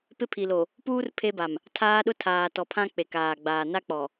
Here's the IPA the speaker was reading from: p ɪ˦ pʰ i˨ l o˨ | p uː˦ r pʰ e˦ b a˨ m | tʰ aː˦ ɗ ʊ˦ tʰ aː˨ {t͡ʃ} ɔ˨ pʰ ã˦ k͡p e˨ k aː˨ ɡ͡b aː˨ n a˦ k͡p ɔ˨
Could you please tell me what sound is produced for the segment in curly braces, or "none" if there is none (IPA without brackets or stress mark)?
t